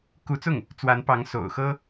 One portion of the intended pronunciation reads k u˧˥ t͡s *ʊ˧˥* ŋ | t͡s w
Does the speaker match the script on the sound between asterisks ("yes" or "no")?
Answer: no